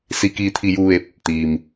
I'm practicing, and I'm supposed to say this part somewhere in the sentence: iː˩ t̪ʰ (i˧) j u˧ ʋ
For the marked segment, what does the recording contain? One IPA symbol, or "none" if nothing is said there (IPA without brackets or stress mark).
i˩